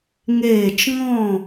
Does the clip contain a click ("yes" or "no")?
no